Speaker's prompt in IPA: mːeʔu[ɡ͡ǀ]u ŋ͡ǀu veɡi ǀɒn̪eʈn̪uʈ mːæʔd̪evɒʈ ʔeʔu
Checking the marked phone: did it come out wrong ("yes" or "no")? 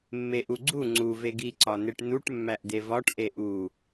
no